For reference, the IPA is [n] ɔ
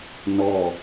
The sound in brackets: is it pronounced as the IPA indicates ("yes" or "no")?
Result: yes